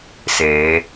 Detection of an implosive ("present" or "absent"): absent